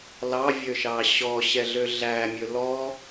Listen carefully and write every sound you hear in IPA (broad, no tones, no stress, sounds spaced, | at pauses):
l ɑ vʲ ø ʃ ɑ ɕ ɔ ɕ ɛ ɮ ø ɮ æ mʲ ɵ l ɔ